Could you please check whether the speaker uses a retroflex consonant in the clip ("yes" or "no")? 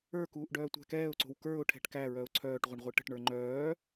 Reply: yes